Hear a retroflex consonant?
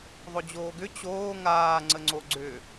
no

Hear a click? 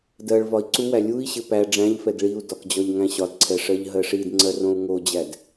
yes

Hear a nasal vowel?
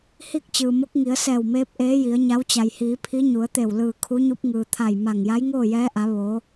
no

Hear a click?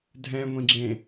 yes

